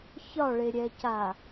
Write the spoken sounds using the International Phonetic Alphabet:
ç ɒ ɭ e ɾʲ ɛ c a

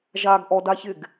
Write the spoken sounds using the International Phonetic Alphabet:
ʒ a ɡ ʔ ɔ d a ç ɪ ɡ

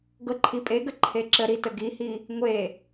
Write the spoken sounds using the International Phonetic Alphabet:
ɡ ɤ ǃʰ i pʼ e ɡ ə ǃʰ e ǁ ə ɾ i t ə ɡ i h i | ŋʷ e

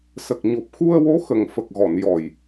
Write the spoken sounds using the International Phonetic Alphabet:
s ə˨˩ k̚ ɲ o˨˩ p̚ x u˧ ə̯ w o˧˥ x ə˨˩ ŋ f ə˨˩ k̚ ɣ ɔ˨˩˨ n j ɔ˨˩ j

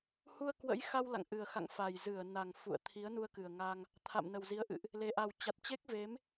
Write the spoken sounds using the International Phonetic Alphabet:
h u˧ ə̯ k w ə̰˧˥ j x a˧ w l a̰˧˨ ŋ ʔ ɨ˨˩ ə̯ x a̰˧˨ ŋ f a˨˩ j z ɨ˧˩ ə̯ n a˨˩ ŋ f ṵ˧˨ ə̯ t̪ʰ i˨˦ ə̯ n u˧ ə̯ k ɨ˨˩ ə̯ ŋ a˧ ŋ | t̪ʰ a̰˧˨ m n ə˨˩ w z i˨˦ ə̯ ʔ ɨ̰˧˨ ʔ | l e˨˩ ʔ a˨˩ w t͡ɕ a˨˩ t̚ t͡ɕ e˦˥ k̚ v e˨˦ m

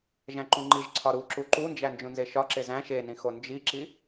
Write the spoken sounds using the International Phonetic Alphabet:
ʒ æ̃ ǃ ũ ŋ͡ǃ i ʒ ǀʰ ɒ ɾ u ǁ u ǃ u n d͡ʒ æ n d͡ʒ ũ n z e ʃ ɒ ǁ e z æ̃ ʃ e n ĩ x o n d͡ʒ i ǁ i

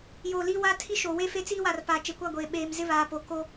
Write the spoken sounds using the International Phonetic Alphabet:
j o˨ l i˦ w a˦ tʰ i˦ ʃ oː˨ w e˦ f e˦ t͡s iː˦ w a˨ r p aː˨ t͡ʃ e˨ kʷ a˦˨ ɡʷ eː˨ ɓ eː˨ m z ɪ˦ β aː˨ p o˨ k o˦

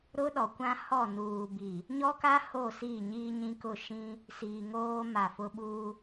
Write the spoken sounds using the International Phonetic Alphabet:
ɾ ʊ˦ ɗ ɔ˨ kʷ ã˦ h ɔ˦˨ n uː˨ b i˨ | ɲ ɔ˦ k a˦ h o˦˨ s iː˦˨ ɲ iː˦ ɲ ĩ˦ k ʊ˦˨ ʃ ĩ˦ | s iː˨ ŋ oː˦ m a˦˨ f ʊ˦ ɓ uː˦

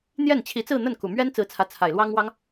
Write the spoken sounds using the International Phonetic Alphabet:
n̪ j ɛ˥˩ n t͡ɕʰ i˧˥ t͡s ɹ̩˥˧ n̪ ə˥˩ n k u˨˩ m ɥ ɛ˥ n t͡s ɹ̩˧˥ t͡sʰ ä˧˥ t͡sʰ a˨˩ ɪ̯ l w ɑ˥ ŋ w ɑ˥ ŋ

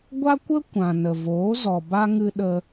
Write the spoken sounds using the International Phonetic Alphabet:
ɡʷ a˦ kʷ ə˦ kʷ ã˨ n ə˨ v oː˨˦ z ɔ˨ b a˦ ŋ ɨ˧ ɗ ə˧

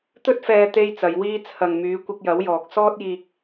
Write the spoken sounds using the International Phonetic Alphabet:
t̪ ɵ˥ t̚ f ɛː˧ t̪ e˥ j t͡s ɐ˨˧ j w iː˥ t͡sʰ ɐ˨ ŋ m yː˨˧ kʷ ɪ˧ k̚ j ɐ˨˥ w j ɔː˨ k̚ s ɔː˥ t̚ j iː˧ k̚

